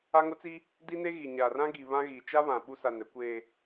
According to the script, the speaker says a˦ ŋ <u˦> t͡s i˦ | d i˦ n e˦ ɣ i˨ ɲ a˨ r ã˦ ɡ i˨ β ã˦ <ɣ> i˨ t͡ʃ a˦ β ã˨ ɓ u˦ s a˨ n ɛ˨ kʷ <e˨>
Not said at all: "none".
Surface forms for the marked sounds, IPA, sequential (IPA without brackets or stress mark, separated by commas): ʊ˦, ɣ, eː˨